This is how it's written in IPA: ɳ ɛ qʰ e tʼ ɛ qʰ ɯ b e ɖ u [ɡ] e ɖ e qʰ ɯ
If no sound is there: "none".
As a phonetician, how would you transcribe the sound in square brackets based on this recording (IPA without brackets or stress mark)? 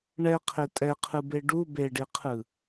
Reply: b